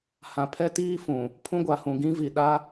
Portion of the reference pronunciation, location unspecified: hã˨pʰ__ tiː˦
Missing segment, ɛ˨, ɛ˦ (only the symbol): ɛ˦